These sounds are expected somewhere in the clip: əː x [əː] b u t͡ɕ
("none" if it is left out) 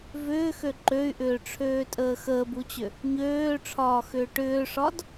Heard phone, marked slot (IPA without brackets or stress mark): əː